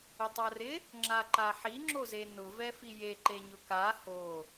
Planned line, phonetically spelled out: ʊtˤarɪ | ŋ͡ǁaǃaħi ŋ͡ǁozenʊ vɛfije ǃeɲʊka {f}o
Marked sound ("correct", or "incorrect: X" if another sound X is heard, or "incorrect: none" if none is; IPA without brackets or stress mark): incorrect: h